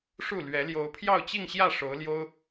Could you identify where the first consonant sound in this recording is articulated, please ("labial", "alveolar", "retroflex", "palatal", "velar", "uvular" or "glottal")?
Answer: retroflex